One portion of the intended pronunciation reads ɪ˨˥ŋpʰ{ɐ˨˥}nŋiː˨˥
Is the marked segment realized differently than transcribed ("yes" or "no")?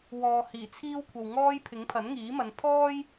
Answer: no